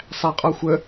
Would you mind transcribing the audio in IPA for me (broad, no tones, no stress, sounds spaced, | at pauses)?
sˤ æ qʼ ɔ xʷ ə